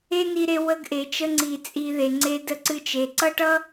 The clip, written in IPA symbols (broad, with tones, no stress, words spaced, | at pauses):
e˦ni˧ɾe˧ wə˧ɡʔe˨t͡ʃə˧ŋ͡ǀi˨ t͡sʼi˨ ðe˨ŋ͡ǀe˧də˧ǀɨ˧ t͡ʃe˨ǀʌ˦ ʈʌ˦